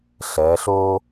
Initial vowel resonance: oral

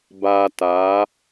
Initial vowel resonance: oral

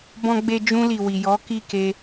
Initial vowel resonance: nasal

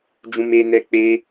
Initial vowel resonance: nasal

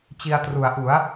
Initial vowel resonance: oral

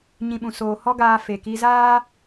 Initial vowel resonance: nasal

